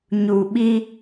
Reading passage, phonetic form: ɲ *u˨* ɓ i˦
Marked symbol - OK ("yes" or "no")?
yes